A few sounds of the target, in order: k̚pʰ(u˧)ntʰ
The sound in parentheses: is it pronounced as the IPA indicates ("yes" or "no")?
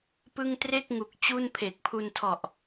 yes